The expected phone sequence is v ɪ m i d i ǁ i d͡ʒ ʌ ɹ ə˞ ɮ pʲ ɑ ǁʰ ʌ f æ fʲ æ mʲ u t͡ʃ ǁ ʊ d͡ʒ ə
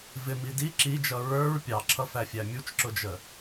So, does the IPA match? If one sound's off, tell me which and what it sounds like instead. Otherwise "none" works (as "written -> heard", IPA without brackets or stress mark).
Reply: ɮ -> ɹ